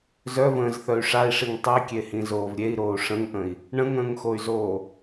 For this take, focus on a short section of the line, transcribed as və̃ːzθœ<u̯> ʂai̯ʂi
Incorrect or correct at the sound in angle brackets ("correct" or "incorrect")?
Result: incorrect